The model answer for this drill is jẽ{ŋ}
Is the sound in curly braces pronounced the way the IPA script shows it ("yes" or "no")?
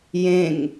yes